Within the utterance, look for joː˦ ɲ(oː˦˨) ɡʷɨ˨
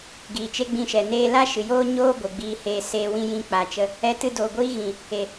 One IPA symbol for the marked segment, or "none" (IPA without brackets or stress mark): oː˦